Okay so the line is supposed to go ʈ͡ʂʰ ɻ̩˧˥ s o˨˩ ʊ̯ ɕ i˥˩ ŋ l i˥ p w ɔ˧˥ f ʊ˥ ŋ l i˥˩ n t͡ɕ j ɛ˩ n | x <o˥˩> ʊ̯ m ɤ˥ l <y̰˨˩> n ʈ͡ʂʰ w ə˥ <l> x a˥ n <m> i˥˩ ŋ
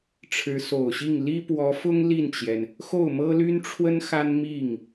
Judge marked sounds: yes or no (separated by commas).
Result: yes, no, no, yes